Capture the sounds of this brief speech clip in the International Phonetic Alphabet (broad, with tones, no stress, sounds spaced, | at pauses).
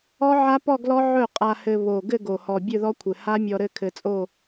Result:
ɔ˦˥ ʕ a˦˥ p ɔ˥˧ ɡ l ɔ˦˥ ʕ ɵ˥˩ qʼ a˧ h ɘ˧ β o˨˩ ɡ ɘ˥˧ ɡ o˨˩ h ɔ˨˩ bʲ ɵ˥˧ ð ɔ˦˥ kʷʰ ɘ˨˩ h a˦˥ mʲ ɔ˧ ɾ ɘ˥˧ kʰ ɘ˧ t͡sʼ o˥˧